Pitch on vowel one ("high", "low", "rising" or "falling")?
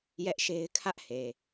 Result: high